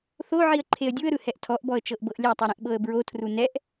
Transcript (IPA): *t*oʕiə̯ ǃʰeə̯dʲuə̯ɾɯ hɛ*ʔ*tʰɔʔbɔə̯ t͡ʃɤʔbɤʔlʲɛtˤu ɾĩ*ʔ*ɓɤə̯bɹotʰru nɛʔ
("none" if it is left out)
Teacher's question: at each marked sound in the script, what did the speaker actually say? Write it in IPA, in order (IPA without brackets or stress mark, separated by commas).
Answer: θ, ʔ, ʔ